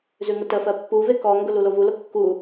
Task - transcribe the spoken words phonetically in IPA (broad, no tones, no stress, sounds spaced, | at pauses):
z ʉ ŋ ʊ t ə f ɜ pː u v e k ɔ ŋ ɡ ʊ l u l o v u l ʊ kː u